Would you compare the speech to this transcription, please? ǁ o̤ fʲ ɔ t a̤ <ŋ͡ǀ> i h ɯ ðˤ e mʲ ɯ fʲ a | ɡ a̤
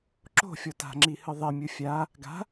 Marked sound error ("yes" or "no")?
yes